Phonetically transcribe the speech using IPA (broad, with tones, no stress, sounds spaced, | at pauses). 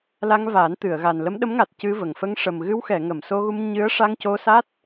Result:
l a˧ ŋ v a˨˩˦ n t̪ ɨ˨˩˨ ə̯ ɣ a˨˩ n l ə˧˥ m ɗ ə˧˥ m ŋ a˨˩ t̚ c ɨ˧ v ə˨˩ ŋ f ə˧ ŋ ʂ ə˨˩ m ɣ ɨ˧ w x ɛ˨˩˨ ŋ ə˨˩˨ m s o˧ ɣ u˧ m ɲ ɨ˧˥ ə̯ ʂ a˧ ŋ c o˧ s a˦˥ t̚